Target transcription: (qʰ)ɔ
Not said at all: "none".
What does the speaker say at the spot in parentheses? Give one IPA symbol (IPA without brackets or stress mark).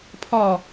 pʰ